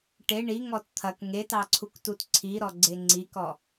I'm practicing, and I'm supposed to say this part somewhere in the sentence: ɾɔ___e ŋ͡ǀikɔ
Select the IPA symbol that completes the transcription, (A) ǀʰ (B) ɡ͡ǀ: B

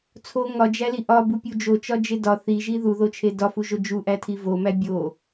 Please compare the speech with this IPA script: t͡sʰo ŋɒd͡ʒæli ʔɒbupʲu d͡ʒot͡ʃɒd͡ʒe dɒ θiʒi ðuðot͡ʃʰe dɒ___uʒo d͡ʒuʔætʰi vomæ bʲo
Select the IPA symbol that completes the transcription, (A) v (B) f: B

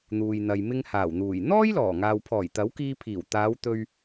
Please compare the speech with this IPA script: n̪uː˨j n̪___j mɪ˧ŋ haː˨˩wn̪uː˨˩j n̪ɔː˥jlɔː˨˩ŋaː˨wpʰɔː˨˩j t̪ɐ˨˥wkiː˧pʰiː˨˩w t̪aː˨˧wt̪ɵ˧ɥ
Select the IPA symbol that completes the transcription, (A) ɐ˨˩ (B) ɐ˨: B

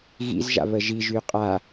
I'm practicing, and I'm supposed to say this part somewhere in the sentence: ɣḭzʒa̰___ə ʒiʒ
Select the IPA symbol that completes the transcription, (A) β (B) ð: A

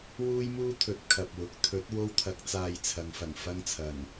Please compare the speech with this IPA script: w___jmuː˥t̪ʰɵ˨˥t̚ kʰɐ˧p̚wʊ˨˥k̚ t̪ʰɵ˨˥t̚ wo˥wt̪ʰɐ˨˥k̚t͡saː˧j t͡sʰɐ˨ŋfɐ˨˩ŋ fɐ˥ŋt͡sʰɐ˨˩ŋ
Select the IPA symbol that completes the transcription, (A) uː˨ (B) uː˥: B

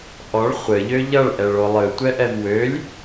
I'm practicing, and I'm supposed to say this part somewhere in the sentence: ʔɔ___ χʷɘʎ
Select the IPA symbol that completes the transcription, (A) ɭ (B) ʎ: A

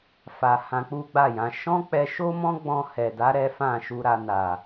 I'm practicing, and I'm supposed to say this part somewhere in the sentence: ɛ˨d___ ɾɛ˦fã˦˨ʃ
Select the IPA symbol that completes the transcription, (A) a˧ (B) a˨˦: B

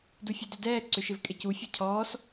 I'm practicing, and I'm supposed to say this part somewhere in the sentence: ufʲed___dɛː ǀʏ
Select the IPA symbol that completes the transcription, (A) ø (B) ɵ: A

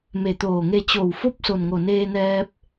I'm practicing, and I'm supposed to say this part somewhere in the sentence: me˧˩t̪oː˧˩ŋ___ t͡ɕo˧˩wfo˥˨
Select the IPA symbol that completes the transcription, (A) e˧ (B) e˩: A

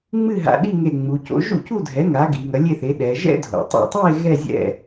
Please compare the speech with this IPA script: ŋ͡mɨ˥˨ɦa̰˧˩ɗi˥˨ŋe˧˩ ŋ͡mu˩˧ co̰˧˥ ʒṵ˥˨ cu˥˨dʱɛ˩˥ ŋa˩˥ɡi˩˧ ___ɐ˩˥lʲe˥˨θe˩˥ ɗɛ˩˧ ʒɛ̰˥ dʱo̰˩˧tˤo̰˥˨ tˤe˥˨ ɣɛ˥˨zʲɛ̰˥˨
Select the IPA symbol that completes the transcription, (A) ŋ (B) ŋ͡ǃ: A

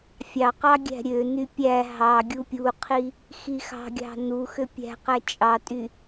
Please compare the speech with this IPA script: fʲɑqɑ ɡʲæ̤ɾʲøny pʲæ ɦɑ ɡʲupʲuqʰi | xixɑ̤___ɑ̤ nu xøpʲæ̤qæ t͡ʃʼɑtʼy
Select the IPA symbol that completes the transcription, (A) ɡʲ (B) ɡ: A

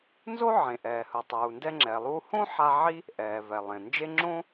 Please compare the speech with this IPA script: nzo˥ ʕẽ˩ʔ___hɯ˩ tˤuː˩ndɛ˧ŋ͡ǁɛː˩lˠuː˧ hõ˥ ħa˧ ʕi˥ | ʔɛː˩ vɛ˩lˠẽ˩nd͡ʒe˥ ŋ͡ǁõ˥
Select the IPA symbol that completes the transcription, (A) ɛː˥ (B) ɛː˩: B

